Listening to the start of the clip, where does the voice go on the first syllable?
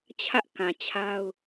high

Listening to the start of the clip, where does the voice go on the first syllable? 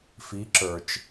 rising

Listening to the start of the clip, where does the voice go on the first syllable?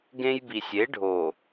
high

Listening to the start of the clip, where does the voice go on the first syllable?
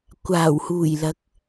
low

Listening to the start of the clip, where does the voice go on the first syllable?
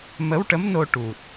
rising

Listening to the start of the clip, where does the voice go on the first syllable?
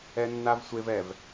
high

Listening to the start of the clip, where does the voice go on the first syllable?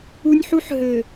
high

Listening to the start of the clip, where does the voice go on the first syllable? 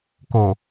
low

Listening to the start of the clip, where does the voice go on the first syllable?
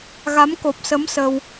rising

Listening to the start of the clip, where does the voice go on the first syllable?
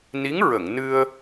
rising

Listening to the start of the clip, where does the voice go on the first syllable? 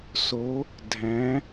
rising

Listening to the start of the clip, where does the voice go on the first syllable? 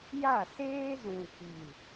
falling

